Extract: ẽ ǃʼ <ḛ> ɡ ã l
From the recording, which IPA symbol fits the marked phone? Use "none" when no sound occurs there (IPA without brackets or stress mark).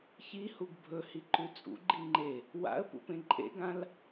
ḛ